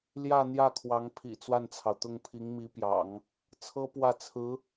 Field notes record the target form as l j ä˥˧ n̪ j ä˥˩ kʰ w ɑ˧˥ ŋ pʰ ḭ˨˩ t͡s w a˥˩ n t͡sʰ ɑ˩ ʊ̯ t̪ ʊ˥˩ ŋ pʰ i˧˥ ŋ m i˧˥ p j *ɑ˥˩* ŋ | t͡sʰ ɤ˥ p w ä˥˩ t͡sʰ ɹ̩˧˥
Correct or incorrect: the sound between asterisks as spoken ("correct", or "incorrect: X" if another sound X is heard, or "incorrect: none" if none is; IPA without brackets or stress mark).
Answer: incorrect: ɑ̰˨˩˦